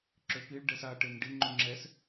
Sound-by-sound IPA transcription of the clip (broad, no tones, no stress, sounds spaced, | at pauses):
ǁ ø p i ɭ ɖ ɛ s a ʈ e n ɖ i ŋ͡ǃ u ŋ͡ǁ ɛ s